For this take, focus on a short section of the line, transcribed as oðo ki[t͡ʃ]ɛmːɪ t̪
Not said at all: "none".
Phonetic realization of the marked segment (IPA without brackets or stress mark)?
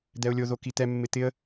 t̪